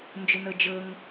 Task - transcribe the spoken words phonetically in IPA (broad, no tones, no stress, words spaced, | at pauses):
nd͡ʒʊnɤd͡ʒɤŋ